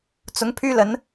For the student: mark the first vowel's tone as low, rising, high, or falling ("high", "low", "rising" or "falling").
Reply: rising